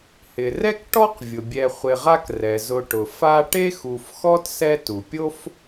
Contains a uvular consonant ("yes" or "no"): yes